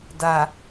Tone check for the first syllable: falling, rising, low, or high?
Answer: low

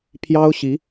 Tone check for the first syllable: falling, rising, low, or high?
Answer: high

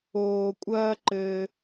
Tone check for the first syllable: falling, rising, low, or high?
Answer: low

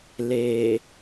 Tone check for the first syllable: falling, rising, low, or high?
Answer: low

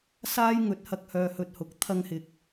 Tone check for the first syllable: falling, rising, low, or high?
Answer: high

